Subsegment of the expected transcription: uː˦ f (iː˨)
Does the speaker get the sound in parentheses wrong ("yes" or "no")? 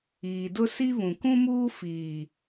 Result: no